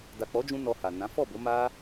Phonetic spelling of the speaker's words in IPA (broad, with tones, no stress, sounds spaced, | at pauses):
d a˨ k͡p ɔ˨˦ d͡ʒ ũ˧ n ɔ˧ h a˨ n ã˨˦ f ɔ˦˨ b o˨˦ m a˦